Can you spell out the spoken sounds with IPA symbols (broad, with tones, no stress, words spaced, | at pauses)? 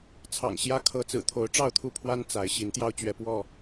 t͡sʰɑ̰˨˩ŋɕjä˦ kʰɤ˨˦t͡sɹ̩˨˩ t̪ʰo˨˦ʊ̯ ʈ͡ʂɑ˥˨ʊ̯t̪ʰu˥˨pʰwa˦n t͡sa˨˦ɪ̯ ɕi˨˦nt̪jɑ˦ʊ̯ t͡ɕɥɛ˨˦pwɔ˥˨